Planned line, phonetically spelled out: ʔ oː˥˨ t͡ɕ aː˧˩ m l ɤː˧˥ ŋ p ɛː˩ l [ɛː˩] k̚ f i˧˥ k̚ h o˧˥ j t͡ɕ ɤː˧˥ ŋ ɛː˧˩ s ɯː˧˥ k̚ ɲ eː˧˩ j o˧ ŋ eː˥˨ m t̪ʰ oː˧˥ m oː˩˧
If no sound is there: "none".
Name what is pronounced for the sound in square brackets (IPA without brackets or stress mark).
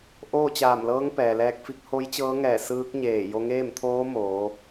ɛː˧